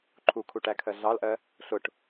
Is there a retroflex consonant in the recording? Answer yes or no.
yes